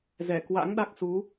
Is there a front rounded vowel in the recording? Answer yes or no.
no